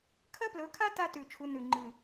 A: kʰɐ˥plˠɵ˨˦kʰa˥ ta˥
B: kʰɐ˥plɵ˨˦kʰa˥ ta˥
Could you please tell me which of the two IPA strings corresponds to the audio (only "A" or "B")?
B